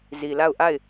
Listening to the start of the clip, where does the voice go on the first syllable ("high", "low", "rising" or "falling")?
low